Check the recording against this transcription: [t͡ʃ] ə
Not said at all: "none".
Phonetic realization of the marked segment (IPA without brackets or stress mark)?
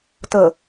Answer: t